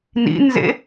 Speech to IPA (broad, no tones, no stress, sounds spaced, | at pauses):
n ḭ n z ḛ